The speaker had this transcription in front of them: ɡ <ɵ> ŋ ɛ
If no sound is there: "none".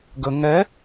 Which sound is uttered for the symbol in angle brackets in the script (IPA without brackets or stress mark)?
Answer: ə